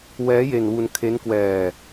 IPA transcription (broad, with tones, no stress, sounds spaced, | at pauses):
w ɛː˦˥ j e˧ n w u˧ n kʰ e˦˥ n k w ɛː˧